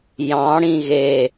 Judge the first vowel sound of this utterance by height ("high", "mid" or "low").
low